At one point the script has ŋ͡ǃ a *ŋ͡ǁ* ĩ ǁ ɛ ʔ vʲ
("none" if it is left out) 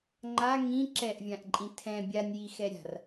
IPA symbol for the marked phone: ŋ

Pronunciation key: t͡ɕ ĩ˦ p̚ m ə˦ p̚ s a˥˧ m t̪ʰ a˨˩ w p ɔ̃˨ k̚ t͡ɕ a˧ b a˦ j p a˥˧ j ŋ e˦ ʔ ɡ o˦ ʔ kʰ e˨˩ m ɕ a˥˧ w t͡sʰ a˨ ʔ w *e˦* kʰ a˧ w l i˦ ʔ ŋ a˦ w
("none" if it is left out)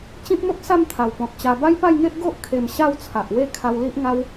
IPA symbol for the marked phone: e˥˧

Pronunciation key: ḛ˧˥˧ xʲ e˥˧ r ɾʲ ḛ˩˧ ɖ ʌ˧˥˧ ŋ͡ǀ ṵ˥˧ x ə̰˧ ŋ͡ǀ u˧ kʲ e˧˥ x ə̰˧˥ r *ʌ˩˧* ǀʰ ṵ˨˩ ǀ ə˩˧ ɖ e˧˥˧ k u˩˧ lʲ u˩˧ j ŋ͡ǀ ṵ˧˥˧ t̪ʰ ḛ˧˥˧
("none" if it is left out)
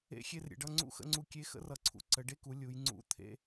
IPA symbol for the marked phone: ʌ˩˧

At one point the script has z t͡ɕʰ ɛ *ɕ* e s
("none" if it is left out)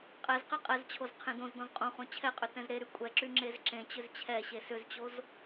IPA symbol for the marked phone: ɕ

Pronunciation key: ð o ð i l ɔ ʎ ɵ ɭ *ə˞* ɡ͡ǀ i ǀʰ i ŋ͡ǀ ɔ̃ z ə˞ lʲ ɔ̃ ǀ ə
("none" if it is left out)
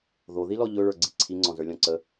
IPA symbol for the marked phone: ə˞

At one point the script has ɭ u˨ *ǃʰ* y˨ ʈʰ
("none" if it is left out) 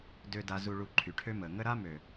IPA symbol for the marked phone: ǃʰ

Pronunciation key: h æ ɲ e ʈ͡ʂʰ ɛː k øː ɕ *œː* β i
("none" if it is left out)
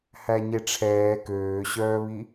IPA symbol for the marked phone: œː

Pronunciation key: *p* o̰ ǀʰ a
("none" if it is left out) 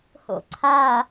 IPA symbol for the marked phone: h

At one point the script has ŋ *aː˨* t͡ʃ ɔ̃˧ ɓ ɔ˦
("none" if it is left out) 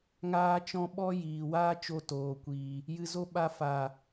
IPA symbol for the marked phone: aː˧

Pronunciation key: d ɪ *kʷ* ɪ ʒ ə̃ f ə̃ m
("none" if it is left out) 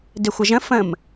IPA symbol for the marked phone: xʷ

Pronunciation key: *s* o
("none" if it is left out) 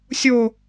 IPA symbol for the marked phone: sʲ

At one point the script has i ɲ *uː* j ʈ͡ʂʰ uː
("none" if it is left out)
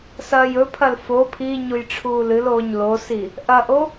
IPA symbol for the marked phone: u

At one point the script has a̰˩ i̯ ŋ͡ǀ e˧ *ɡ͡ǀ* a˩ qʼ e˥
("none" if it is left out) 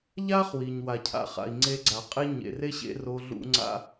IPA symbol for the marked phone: ɡ͡ǀ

